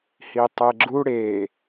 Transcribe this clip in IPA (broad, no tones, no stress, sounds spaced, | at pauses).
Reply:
h i tˤ e ɡ͡ǁ u ɽ e